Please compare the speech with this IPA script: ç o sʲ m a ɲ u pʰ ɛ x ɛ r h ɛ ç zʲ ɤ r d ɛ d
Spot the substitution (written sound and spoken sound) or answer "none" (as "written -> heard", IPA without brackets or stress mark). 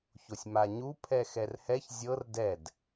none